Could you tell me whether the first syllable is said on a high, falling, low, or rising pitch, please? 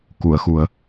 low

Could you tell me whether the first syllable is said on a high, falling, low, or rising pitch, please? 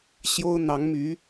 high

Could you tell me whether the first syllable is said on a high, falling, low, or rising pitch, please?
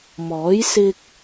rising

